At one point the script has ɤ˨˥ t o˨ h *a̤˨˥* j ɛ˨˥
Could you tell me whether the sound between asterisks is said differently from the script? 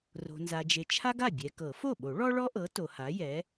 yes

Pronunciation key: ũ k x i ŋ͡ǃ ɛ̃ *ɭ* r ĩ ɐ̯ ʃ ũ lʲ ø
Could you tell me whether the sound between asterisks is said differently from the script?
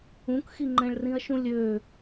no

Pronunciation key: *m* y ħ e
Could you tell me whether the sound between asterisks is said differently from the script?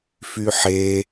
yes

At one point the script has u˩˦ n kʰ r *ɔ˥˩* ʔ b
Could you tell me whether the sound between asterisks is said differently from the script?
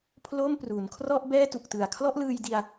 no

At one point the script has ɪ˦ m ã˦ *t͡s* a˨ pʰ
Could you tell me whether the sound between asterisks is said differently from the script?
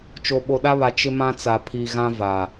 no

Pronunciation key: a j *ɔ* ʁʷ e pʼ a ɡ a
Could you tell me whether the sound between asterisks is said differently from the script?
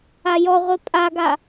no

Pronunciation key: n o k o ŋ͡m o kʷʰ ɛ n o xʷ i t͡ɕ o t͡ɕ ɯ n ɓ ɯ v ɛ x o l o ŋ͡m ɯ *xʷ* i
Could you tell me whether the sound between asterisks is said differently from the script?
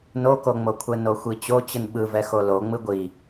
yes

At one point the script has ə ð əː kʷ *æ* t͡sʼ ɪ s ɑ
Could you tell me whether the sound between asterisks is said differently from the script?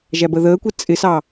yes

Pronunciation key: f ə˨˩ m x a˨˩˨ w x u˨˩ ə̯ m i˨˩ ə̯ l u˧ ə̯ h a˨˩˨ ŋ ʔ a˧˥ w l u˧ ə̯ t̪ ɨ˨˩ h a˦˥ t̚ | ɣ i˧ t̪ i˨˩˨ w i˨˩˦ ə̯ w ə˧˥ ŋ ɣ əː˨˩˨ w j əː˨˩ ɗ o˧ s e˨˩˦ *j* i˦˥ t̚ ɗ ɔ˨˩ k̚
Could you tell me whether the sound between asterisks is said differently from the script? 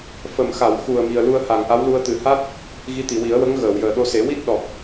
yes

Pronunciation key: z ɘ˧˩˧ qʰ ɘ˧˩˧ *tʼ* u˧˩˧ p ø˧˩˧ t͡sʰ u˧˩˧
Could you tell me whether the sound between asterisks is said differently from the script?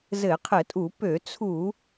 no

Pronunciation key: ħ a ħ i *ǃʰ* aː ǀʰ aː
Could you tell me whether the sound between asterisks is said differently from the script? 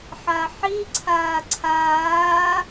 yes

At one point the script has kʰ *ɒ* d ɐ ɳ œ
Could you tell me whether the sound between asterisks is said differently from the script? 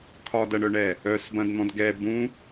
no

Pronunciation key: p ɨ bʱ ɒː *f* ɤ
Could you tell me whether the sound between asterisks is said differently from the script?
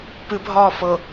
no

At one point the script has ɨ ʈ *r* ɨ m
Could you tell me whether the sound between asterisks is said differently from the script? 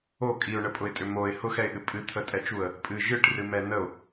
no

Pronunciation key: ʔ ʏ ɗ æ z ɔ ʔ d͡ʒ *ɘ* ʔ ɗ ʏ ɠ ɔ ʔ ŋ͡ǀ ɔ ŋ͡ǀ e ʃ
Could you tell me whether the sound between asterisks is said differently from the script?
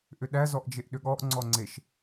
yes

